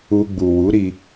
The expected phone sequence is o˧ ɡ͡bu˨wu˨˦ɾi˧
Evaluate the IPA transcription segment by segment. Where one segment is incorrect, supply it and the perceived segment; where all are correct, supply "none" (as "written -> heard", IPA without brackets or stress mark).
o˧ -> u˧